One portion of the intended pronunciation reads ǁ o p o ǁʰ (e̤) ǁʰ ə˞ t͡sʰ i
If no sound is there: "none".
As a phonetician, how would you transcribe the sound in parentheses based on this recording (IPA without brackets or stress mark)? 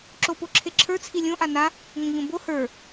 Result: e